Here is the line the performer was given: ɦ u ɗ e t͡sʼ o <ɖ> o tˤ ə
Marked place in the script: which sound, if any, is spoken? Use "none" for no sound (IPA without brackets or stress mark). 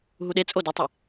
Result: d